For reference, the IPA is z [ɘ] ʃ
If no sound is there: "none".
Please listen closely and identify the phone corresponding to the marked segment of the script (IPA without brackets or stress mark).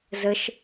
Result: ɘ